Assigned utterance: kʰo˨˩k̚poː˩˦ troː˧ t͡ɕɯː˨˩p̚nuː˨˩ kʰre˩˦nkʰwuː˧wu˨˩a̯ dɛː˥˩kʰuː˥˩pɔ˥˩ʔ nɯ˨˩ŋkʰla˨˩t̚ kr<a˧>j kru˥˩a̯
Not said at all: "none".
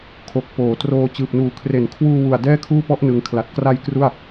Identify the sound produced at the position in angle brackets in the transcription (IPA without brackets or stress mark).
a˧